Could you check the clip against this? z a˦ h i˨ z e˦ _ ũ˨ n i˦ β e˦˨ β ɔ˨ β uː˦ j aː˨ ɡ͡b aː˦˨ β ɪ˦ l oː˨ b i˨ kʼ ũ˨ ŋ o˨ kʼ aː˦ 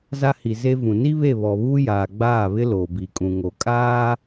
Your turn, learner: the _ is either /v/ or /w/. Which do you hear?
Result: v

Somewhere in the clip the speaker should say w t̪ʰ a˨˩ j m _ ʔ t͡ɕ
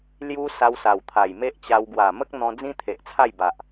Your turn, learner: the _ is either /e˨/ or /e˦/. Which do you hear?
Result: e˦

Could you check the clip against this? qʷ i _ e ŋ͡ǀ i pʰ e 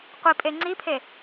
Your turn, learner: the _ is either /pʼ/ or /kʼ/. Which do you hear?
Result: pʼ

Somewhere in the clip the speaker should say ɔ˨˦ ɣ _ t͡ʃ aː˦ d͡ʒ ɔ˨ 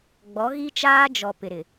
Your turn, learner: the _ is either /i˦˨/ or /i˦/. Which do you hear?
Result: i˦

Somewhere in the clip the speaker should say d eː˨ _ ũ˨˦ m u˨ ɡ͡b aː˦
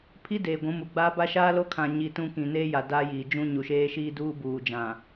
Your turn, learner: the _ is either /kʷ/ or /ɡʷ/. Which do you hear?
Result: ɡʷ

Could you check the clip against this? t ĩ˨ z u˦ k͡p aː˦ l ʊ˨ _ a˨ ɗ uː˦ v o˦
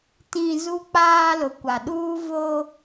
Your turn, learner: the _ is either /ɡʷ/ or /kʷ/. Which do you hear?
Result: kʷ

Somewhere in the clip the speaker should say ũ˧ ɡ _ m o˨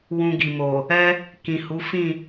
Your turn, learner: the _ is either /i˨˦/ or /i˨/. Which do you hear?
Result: i˨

